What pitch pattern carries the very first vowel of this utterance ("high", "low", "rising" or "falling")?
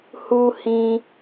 high